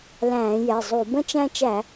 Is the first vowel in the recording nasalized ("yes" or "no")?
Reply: yes